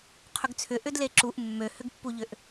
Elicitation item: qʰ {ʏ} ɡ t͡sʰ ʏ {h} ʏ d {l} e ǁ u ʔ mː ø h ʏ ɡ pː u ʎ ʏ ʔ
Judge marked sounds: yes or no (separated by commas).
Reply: yes, no, yes